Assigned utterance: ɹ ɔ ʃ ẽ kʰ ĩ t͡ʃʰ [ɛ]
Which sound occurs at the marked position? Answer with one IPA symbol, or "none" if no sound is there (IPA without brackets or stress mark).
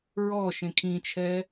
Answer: ɛ